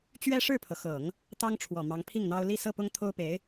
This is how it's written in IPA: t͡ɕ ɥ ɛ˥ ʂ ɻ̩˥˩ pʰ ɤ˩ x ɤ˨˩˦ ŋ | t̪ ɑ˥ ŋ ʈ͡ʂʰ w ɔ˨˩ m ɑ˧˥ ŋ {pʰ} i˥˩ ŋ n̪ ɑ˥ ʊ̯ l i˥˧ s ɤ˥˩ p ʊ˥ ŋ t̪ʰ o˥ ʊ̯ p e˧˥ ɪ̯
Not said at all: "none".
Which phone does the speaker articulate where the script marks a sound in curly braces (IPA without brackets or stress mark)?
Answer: pʰ